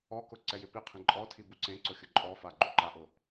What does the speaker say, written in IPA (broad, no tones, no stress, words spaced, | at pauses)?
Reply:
ɔkʊ ǀɛjɪpiqʰĩ ǃʼɔtʰi buǀẽǀʊ xʲʊǃʼɔfa ɡ͡ǃuǃaʔʊ